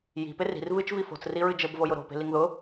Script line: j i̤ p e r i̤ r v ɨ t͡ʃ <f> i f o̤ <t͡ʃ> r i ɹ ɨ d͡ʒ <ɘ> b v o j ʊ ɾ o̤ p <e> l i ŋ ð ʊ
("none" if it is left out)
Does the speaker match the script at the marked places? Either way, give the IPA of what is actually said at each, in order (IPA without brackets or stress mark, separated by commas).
v, t͡s, ɘ, e̤